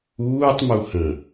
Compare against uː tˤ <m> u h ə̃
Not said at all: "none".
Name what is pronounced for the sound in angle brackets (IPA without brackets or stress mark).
m